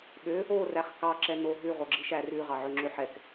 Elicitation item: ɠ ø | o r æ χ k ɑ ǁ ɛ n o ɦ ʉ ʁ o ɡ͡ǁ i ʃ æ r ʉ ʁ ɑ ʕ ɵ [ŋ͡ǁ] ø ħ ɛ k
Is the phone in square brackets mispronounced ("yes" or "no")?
no